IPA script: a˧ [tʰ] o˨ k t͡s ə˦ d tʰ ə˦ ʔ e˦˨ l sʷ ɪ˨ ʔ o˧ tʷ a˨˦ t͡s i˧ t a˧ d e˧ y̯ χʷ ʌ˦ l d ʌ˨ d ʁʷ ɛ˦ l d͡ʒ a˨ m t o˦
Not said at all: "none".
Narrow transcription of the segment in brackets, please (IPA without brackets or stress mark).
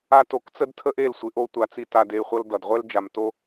t